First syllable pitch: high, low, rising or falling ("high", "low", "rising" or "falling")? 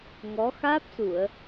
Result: rising